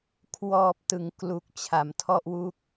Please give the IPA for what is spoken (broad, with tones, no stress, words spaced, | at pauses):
kʰwɔː˨˩p̚ tɯ˩˦ŋklu˨˩k̚ t͡ɕʰa˩˦mtʰɔ˥˩ʔwu˥˩k̚